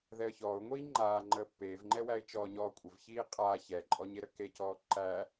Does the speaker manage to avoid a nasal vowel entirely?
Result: yes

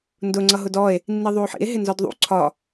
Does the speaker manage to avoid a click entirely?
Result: no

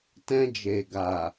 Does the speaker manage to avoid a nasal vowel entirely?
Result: no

